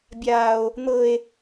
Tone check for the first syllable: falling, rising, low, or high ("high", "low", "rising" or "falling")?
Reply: high